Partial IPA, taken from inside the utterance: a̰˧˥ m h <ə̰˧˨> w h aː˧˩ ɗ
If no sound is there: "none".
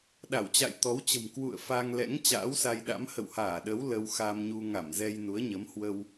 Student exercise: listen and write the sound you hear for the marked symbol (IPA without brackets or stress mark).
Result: ə̰˧˨